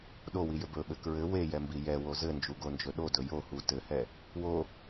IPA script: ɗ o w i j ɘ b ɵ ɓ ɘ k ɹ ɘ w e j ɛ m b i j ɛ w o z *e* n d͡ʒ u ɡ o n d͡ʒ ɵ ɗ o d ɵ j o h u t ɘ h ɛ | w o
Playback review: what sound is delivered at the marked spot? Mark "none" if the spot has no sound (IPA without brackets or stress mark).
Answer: ɘ